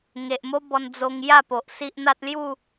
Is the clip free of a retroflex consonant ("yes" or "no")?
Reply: yes